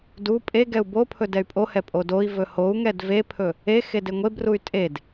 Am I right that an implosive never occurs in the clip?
yes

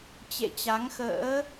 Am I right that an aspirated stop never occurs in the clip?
yes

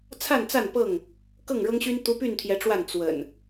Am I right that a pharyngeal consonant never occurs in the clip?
yes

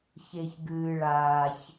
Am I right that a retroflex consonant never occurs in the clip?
no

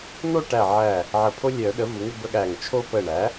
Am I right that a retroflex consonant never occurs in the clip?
no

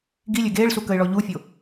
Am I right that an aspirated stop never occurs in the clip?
yes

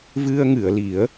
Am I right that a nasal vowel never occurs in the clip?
yes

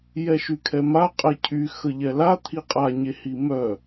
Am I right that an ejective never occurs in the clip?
no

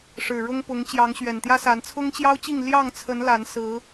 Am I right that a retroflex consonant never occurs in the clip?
no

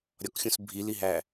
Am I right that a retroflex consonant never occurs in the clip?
yes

